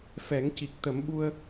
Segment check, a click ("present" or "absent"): absent